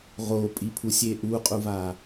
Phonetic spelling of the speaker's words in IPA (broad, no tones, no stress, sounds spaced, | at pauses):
ʁ o pʼ i pʰ u sʲ e ʔ u qʼ u v a